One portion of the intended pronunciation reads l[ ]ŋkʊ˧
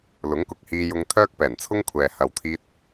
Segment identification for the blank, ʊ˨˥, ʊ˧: ʊ˨˥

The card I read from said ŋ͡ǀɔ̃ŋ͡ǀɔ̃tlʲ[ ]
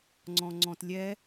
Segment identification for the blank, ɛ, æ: ɛ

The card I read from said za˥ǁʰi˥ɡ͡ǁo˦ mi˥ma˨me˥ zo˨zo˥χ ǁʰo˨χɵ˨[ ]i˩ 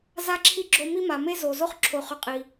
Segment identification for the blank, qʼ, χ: qʼ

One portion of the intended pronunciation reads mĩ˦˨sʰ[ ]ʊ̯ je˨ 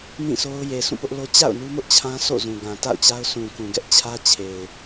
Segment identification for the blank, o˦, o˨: o˦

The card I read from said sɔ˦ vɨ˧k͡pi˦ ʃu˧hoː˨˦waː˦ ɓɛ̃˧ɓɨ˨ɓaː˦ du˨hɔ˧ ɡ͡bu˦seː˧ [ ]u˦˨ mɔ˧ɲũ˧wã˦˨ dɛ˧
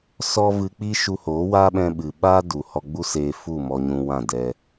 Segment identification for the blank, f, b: f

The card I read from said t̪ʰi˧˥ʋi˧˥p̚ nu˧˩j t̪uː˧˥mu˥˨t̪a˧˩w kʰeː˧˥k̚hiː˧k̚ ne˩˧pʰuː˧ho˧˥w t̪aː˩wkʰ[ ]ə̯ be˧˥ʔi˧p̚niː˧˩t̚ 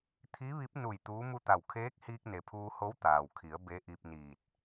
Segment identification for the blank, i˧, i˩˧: i˩˧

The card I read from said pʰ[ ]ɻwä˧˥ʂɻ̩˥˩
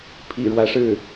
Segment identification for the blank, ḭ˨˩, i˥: ḭ˨˩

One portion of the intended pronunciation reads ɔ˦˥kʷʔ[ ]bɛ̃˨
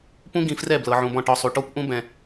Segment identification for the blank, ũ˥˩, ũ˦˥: ũ˦˥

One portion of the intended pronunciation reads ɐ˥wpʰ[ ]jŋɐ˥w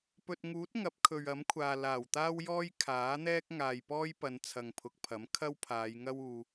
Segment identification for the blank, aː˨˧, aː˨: aː˨˧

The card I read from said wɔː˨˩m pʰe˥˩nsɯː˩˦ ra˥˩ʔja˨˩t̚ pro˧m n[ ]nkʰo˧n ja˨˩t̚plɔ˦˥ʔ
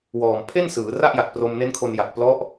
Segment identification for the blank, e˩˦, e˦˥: e˦˥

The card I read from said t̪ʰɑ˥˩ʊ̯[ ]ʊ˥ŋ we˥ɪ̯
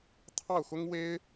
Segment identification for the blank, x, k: x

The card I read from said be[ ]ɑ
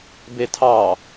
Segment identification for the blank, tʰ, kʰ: tʰ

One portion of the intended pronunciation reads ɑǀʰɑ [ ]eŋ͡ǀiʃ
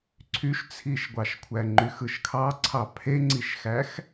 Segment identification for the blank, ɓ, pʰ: pʰ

